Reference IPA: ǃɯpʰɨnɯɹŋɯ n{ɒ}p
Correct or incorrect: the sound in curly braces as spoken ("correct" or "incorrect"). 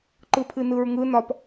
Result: correct